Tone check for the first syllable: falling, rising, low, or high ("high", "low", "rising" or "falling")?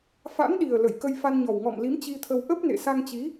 rising